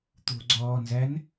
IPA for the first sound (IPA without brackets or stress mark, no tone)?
t̪